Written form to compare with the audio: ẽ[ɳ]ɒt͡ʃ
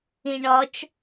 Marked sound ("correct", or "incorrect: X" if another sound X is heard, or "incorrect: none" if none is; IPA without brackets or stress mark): correct